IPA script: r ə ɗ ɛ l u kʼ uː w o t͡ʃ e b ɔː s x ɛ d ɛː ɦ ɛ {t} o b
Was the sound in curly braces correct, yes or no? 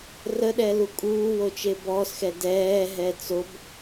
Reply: no